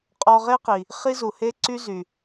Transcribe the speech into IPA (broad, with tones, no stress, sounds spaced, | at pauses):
qʼ ɔ˧ ʁ e˥ q i˩ | χ i˥ z u˩ h e˥ ǀ y˥ z y˩